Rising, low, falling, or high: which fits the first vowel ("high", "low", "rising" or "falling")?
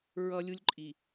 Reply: high